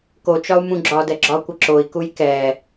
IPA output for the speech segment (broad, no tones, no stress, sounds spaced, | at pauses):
k o t͡ʃ ɒ u̯ m ũ ɡ͡ǁ ɒ d ɛ ɡ͡ǁ ɒ kʷ ə ǁ o i̯ k u j k ɛ